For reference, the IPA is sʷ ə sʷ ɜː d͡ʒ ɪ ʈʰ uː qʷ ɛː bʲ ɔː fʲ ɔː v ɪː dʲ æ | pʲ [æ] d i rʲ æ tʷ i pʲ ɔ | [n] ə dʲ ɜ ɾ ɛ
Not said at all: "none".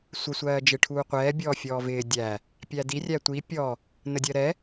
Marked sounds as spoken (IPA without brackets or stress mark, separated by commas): æ, n